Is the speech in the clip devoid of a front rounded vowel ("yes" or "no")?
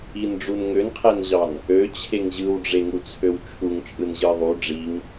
no